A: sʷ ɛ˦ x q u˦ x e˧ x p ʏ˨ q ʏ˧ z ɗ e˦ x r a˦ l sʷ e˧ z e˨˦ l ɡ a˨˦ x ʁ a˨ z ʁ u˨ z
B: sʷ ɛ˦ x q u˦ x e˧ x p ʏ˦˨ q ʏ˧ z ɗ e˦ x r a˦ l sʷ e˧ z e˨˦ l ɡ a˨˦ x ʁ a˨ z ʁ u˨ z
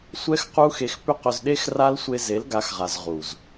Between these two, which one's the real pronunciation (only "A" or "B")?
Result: B